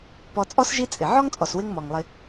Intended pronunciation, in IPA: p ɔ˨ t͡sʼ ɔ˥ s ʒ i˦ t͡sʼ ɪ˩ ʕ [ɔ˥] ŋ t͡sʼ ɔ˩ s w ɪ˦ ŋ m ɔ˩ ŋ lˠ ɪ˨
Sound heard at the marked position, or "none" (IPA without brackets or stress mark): ɔ˥